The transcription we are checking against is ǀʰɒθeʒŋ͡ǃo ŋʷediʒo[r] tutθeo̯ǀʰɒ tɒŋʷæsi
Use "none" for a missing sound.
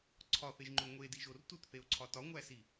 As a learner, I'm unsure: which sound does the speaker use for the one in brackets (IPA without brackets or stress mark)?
r